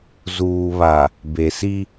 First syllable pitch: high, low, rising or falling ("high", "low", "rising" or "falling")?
low